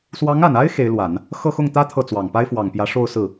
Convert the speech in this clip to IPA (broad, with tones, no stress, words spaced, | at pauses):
swɑ˧˥ŋa˨˩na˥ɪ̯ xe˧˥ɪ̯lwa˨˩˦n | xɤ˥˧ xʊ˥˩ŋt̪ä˥ t̪ʰɤ˥˩t͡swɑ˨˩ŋ pa˥ɪ̯fwɑ˨˩ŋpjä˧˥ ʂo˥˧ʊ̯sɹ̩˥˩